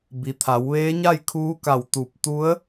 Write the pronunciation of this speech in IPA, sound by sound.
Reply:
bi˩t̪ʰa˩˧wʋeː˧˥ ɲa˥˨jkʰuː˧˥ka˧˩w t̪u˧˩p̚ t̪u˧˥ə̯

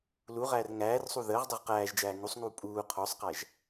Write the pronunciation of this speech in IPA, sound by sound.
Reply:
luʁæːr ŋæːrsˤu ðəːʁdˤuʁ qæːʒd͡ʒæː ŋusˤŋuː pʼuː qʰɔsˤqæʒ

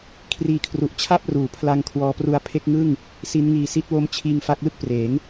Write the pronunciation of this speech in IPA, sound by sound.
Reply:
kʰriː˧kʰru˨˩ʔt͡ɕʰa˥˩p̚ ruː˩˦pʰla˧ŋ kʰwɔː˧pru˦˥a̯ pʰe˦˥k̚ŋɯ˥˩ŋ | si˦˥nŋiː˧ si˦˥t̚wo˦˥mt͡ɕʰiː˧ŋ fa˦˥k̚lɯ˥˩k̚ preː˩˦ŋ

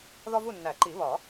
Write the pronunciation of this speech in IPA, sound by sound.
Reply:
ðɒ˦vu˦˨nːæ˨˩˦ǃi˨˩˦ βɒ˨˩˦

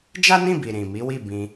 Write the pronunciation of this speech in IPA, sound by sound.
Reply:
d͡ʒa˦nĩ˦˨bi˨ ɾĩ˨ mi˨˦wi˦˨ bĩ˧

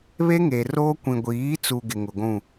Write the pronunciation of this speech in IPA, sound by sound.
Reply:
βe˦ŋe˨roː˦kʷĩ˨ ɡʷiː˨˦t͡su˨ ɡɪ˨ŋʊ˨ɡʷũ˦˨

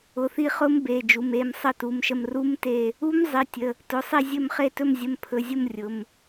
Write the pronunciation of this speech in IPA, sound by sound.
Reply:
ʊ˩˧˩θi˦˨χʊ˦˥m be˩˧˩d͡ʒu˩˧˩me˦˨m sˤə˦˨tu˩˧˩mʃə˦˨m ru˦˥mte˦˨ | u˦˥m zˤi˩˧˩tʲə˩˧˩ | tʊ˩˧˩sˤi˦˨zʲɵ˦˨mχe˦˨ tɵ˦˨mzʲə˩˧˩mpʰɵ˩˧˩zʲʊ˦˨m rʲʊ˩˧˩m

